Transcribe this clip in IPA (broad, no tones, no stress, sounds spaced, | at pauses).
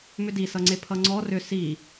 m ʏ d i s ʌ ŋ͡ǀ e pʰ ʌ ŋ͡ǀ ɔ r ʏ s i